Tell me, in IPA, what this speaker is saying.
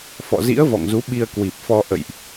f ɔ̰˧˨ z ḭ˧˥ ə̯ v ɔ̰˧˨ ŋ z u˨˦ ɓ i˧ ə̯ k w i˨˩ p̚ f ɔ˧ ʔ ə̰˧˨ j ʔ

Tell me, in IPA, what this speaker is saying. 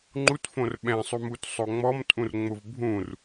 ŋ͡ǃ u t f õ r ɓ ɛ̃ sˤ u m u t sˤ o ŋ͡m ɔ m tʼ ũ r ŋ͡m ʊ v bʱ ũ r

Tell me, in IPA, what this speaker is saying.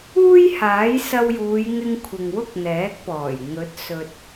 uː˥ j h aː˨˥ j s ɐ˧ w j uː˨˧ j ŋ ɪ˧ ŋ kʷʰ ɪ˨ ŋ w ʊ˥ k̚ n̪ ɛː˨˥ k̚ p ɔː˨˩ j ŋ ɵ˨˥ t̚ s ɵ˨ t̚

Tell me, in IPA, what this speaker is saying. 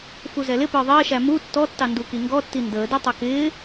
f u z ɛ l ɪ p ə˞ ðˤ ɪː ʃ æ m u tː ɔ tː ɑ n d u k i ŋ ɡ ɔ tː i n d əː d i tˤ ʌ k ɪː

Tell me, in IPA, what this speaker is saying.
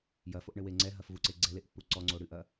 j ɐ f o ʔ ɳ ɘ w e ŋ͡ǀ ɛ ɦ ɐ f v u ǀ e ɡ͡ǀ ɛ l e ʔ pː u ǀ ɔ ŋ͡ǀ o ɽ ɨ ʔ ɐ

